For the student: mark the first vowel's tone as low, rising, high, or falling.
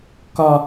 high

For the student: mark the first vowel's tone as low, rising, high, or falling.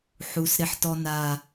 low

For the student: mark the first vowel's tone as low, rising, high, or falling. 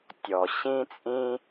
low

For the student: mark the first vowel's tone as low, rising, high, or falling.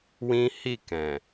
high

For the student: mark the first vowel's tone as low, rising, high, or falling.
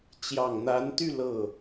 low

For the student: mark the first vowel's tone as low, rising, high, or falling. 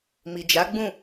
low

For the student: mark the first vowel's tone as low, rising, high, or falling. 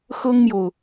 high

